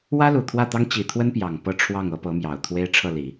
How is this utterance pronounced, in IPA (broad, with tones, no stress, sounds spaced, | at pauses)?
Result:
w ä˥ l u˨˩ t̪ʰ w ä˥˩ t̪ ɑ˥ ŋ t͡ɕ i˨˩ t̪ʰ w ə˥ n p j ɑ˨˩ ŋ p ɤ˥˧ ʈ͡ʂʰ w ɑ˥˩ ŋ ɤ˧˥ p ɤ˧˥ m j ɑ˨˩ ʊ̯ t̪ʰ w e˥ ɪ̯ ʈ͡ʂʰ ɤ˥˩ l i˨˩˦